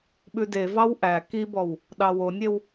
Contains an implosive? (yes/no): yes